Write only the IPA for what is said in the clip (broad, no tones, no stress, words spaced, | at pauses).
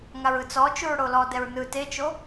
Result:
ŋaɹɯt͡sɔt͡ʃuɹ ɽolɔdɛɹ nɯ tet͡ʃo